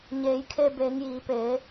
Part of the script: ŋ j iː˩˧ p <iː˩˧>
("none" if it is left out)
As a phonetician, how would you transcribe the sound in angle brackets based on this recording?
eː˩˧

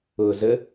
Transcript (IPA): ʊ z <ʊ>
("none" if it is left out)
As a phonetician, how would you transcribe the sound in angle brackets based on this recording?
ə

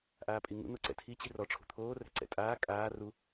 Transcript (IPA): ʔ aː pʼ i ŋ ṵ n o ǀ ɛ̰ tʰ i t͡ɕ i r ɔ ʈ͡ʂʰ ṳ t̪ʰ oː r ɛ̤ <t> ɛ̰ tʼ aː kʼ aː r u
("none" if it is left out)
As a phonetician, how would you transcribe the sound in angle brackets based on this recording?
ǀ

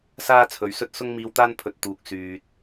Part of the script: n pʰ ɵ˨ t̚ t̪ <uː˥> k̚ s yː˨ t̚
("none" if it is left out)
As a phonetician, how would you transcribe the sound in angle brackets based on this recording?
uː˨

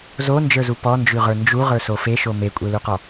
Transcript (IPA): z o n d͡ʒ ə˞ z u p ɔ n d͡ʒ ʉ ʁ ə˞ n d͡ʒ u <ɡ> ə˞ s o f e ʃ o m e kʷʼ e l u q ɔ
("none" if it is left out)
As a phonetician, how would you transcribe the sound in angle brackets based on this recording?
ʁ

